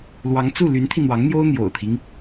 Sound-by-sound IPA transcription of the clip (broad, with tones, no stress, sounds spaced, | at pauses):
l w ɑ˧˥ ŋ t͡s u˥˩ l y˧˥ n t̪ʰ i˧ n̪ w ɑ˧˥ ŋ n̪ j o˥ ʊ̯ n̪ j o̰˨˩ ʊ̯ t̪ʰ i˦ ŋ